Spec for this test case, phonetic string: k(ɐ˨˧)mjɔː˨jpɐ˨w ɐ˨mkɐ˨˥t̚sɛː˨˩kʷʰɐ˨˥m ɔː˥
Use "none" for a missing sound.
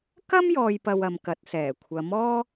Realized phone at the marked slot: ɐ˥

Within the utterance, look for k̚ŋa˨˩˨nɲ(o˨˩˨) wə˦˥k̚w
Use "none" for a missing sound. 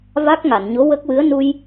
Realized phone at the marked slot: o˧˥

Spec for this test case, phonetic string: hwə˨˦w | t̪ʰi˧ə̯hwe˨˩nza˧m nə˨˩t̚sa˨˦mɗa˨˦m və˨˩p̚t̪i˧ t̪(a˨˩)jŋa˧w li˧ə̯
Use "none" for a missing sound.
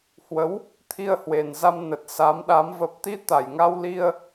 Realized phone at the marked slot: a˨˩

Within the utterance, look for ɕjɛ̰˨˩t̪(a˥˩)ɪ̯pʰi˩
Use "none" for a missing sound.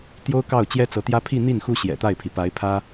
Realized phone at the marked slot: a˥˩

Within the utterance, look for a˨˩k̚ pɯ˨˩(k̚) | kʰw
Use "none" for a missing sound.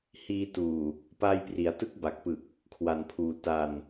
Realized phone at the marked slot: k̚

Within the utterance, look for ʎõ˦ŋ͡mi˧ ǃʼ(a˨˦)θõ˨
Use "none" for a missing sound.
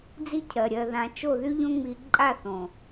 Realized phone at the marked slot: a˦˨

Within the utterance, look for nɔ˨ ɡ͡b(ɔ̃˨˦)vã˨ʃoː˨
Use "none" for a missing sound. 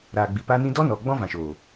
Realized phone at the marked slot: ɔ̃˦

